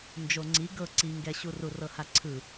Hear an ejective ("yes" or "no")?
no